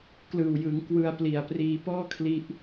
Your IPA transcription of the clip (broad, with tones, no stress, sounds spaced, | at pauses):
k l ɯː˨˩ w j ɯ˩˦ ŋ k w ɯ˧ a̯ p l i˨˩ a̯ p r iː˧ p ɔː˥˩ kʰ l i˦˥ ʔ